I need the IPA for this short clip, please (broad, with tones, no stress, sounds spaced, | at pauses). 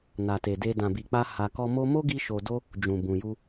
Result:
n a˨ t e˨ d e˧ d ã˨ b i˨ k͡p a˧ h a˨ k ɔ˧ m o˦ m o˦ ɡ i˧ ʃ o˨ d o˧ | d͡ʒ ũ˨ b ũ˨ j u˧